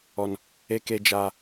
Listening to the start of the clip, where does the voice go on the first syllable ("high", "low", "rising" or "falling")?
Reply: low